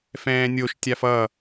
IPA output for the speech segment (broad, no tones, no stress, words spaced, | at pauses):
fɛ̃ːnʲoʃ tʲafʌ